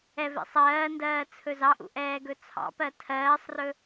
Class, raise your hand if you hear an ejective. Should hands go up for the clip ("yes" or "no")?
no